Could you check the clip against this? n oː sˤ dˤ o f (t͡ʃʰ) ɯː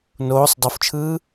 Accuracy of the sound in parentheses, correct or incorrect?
correct